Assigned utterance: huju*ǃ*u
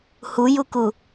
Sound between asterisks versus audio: incorrect: k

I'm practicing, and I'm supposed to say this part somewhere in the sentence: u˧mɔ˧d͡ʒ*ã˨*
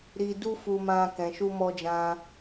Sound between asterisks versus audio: incorrect: ã˧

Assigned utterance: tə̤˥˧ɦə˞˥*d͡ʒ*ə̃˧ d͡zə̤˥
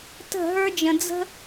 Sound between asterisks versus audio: correct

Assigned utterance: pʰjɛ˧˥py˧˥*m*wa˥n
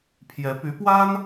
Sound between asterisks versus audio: incorrect: p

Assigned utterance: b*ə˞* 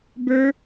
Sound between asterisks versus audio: correct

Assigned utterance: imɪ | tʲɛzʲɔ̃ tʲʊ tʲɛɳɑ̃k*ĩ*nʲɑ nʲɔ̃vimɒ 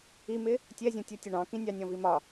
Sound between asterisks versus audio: correct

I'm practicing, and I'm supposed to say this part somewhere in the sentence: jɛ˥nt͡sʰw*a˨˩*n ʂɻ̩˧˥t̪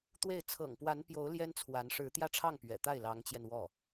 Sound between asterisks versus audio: incorrect: a˧˥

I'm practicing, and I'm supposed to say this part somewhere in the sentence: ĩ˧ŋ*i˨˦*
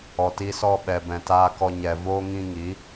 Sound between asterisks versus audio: correct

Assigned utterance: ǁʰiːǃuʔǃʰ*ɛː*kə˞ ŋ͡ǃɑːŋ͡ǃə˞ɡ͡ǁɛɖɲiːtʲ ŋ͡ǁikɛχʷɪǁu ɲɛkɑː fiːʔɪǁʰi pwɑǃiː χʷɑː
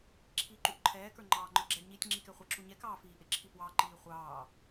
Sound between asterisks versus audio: correct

